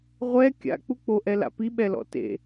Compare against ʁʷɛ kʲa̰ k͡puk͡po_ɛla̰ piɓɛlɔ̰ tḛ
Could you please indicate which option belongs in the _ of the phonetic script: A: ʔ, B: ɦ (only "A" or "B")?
A